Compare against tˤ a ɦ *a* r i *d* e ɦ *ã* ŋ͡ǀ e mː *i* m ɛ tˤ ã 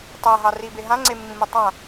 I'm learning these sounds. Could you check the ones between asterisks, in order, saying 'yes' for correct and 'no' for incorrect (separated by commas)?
no, no, yes, no